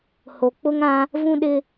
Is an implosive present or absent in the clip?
present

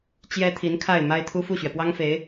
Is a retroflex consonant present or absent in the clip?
absent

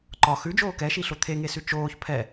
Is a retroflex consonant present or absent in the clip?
absent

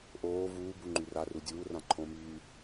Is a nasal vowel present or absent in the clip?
present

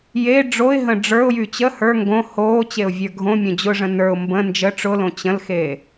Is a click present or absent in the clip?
absent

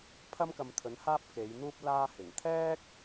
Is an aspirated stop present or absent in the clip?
present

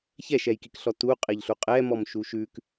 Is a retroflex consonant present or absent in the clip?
absent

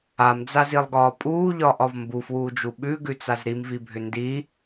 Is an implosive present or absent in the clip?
present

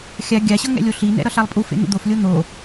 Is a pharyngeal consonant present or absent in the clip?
absent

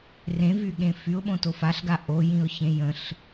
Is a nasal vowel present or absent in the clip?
present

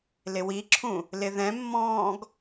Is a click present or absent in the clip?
present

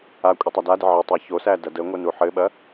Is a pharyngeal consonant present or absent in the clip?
present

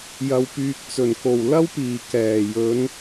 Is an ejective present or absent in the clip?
absent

